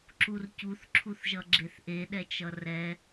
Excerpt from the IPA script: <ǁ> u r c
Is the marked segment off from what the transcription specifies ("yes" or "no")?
no